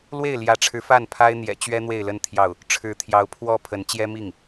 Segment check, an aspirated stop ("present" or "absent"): present